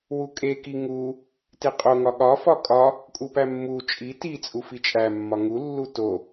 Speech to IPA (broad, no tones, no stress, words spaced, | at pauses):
wukʼeki ŋu | teqʼoŋɒ ɠɒ fɒkʼɒ | kʼupæmːu t͡ʃʼi ti t͡sʼufit͡ʃʼæmːɒ ŋulːu to